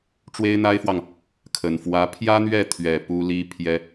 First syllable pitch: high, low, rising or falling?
high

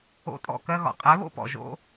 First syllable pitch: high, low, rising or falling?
falling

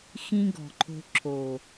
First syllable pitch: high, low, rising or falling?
high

